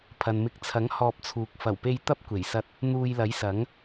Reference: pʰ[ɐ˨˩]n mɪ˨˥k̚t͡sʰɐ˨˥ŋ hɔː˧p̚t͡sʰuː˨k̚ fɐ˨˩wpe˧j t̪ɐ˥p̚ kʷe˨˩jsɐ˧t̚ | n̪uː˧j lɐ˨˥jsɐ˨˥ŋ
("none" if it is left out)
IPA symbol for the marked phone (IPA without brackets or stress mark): ɐ˨